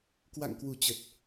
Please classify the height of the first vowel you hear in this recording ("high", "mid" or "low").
low